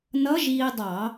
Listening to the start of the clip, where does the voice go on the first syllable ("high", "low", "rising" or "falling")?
rising